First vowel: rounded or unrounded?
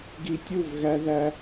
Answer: unrounded